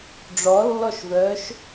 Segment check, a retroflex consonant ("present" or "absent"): present